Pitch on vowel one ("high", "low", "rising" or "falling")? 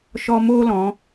high